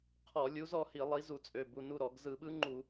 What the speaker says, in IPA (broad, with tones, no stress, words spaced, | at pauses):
qʰɔ˧˩˧lʲu˨˥z ɔ˧hi˧˩˧ lˠi˨˥zu˧˩˧t͡sʼø˩˧˩ bu˩˧˩nu˥˨ ɾɔ˧˩˧ɡ zɯ˧˩˧ɓɯ˦˥ŋ͡ǃu˧˩˧